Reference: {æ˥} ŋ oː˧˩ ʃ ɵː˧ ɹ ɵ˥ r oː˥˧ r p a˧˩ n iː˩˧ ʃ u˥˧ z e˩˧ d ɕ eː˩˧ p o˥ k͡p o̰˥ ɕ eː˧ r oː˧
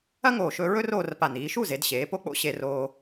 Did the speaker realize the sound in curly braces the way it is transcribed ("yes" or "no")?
no